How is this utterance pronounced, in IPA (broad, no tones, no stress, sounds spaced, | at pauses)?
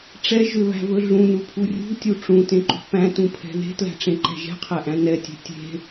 ʈ͡ʂ ɛ ʒ ʏ β æ̤ v ɵ ɮ ũ n u pʰ u rʲ ṳ tʲ u ʈ͡ʂ ũ t ẽ ǃ ṳ p æ̃ t ũ pʰ ɛ̤ ð e̤ t l æ̤ ʈ͡ʂ ẽ ǃ ɛ̤ ʒ ɛ̤ qʰ æ ʔ æ̃ n ɛ tʲ e̤ tʲ e̤